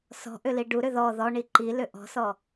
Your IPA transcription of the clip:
sɔ̤ʔʏli ɖuɾʏ ðɔ ðɔɳi ǃilʏ ʔɔ̤sɔ

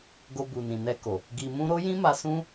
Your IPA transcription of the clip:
ɡo˧bu˨nĩ˨ nɛ˧ko˨ | ɡi˧mũ˦ ɾo˦jĩ˦ma˧ sũ˦

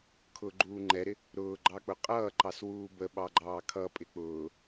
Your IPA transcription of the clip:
kʰʊːɡ͡ǃuːŋ͡ǃɛɾɪ | ɾʊːɡ͡ǃɑk͡pʊ qʼʌːǃɑswuː bəɓɑɡ͡ǃɑː kʰʌpʼɪ k͡pʊː

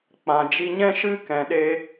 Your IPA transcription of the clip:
k͡pã˨d͡ʒi˧ɲɛ̃˦ ʃɨ˦kɛ̃˨ɗe˧

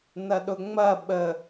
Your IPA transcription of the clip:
nɐɗʊŋ͡mɐ ɓə

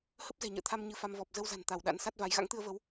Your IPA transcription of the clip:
hə˦˥p̚zɛ̤˨˩ɲə̰ː˧˨t̪ʰa˧m ɲɨ˧fa˧m vɔ˨˩p̚ zə˧wza̤˨˩n t̪a˧˩w ɗa̰˧˥nsa˦˥t̚va˨˦j ɣa̰˧˥ŋt̪ɨ˧ə̯və˨˦w

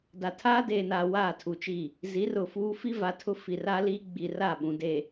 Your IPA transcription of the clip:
da˨tʰaː˦deː˨ naː˨ waː˦˨tʰu˨t͡ʃi˦˨ | zi˨˦rʊ˨fuː˦ fi˦va˨tʰʊ˦ fi˨ra˦liː˦ ɡ͡bi˨ra˦˨ɓũ˨ de˨

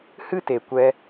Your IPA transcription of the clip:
hɨ˦te˨kʷɛ˧

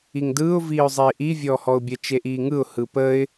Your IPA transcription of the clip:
iŋdɯːʊ̯ viːʊ̯zˤiːʔi vʲɔːhɔʊ̯bʲə t͡ʃeʔiːŋɯʊ̯ hɯpəɪ̯

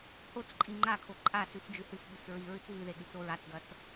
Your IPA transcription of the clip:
hot͡sǃʼi ŋ͡ǃakʰo ǃʼasʉf d͡ʒʉhɨfɓʉt͡s ɹiɹɨt͡s vʉðe ɠʉt͡soɹat͡sɡɐt͡s

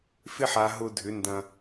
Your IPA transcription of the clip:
fɪ˧ħa˨ ɦʊ˧dʱʏ˨˦ndɐ̃˧

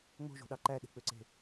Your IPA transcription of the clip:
ŋ͡mo̤ʒo̤ɗɑ ǃæɗe̤k͡pøǀe̤

